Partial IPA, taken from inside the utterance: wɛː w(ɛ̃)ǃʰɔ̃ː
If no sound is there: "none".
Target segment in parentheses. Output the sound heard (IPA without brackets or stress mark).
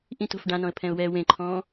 ẽ